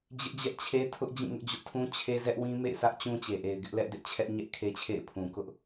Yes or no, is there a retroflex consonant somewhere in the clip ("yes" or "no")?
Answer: no